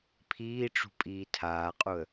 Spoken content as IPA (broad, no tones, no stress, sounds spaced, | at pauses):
pʰ iː ʈ͡ʂ ṳ pʼ iː tʰ aː qʼ u ə̯